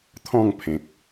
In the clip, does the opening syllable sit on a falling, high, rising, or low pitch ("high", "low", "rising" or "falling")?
falling